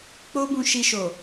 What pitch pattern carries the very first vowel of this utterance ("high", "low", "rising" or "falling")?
high